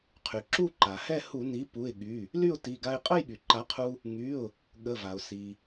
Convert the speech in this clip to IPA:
qʰ y˩ ǁ u˥˨ ǃ a˩ h ɛ˥˨ h u˧˩˧ n i˩˥ p u˩˧˩ ɪ̯ ɠ y˩˧˩ | l y˥˨ ʊ̯ t i˩˧˩ ɡ a˧ ɪ̯ qʼ ə˥˨ j ɠ y˩ ǃ a˩˥ qʰ u˧ | ŋ y˩˧˩ ʊ̯ | ɠ ə˩˧˩ v a˩ ʊ̯ s i˩

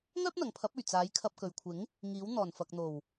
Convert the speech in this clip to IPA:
ŋ œː˥ p̚ n̪ ɐ˨ ŋ pʰ ɐ˨˥ p̚ ɵ˨˩ ɥ t͡s aː˨˥ j kʰ ɐ˧ p̚ k ɵ˨ ɥ kʷʰ ɪ˨˥ ŋ | ŋ iː˨˥ w n̪ ɔː˨˩ n f ɐ˨ k̚ n̪ o˨˩ w

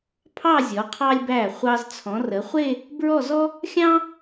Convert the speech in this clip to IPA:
pʰ ɑ˥˧ zʲ ɔ˩˧ qʰ ɑ˧ lʲ b æ˧˩ χʷ ɑ˧ z t͡sʰ ɔ̃˩˧ r ə˩˧ χʷ e˥˧ | b ɹ ɔ˥˧ z ɔ˥ | xʲ ɑ̃˥

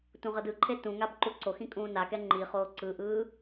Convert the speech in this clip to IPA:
t ũ ʁ ʌ d ɯ ǃʰ e t ũ ŋ a b ǃ u ǀ o x ĩ kʼ ũː n a k ɛ ŋ͡ǃ i χ oː ǀ ɯ ʔ ɯː

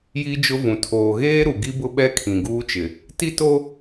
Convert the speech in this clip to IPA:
j i˦ d͡ʒ ʊ˦ v ũ˨ tʰ oː˨ ɣ eː˦ ɾ u˨ ɡ i˦ b ʊ˦ ɓ ɛ˦ kʰ ĩ˨ ɡ uː˦ t͡ʃ ɪ˨ | t i˦ t o˦

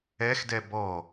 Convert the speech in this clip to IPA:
ɛ x d ɛ b ɔ

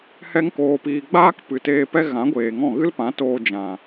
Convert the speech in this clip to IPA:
h ɛ˧ ŋ k oː˨ p iː˨ ɡ͡b aː˦ k p ɨ˨ t eː˧ p ɛ˦ ɣ ã˨˦ ɡʷ eː˨ ŋ ɔ̃˦˨ ɣ ɨ˦ l p ã˨˦ t oː˧ d͡ʒ ã˨

